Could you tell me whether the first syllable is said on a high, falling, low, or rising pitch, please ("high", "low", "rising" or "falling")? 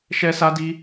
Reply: high